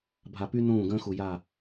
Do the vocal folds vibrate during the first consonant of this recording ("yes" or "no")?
yes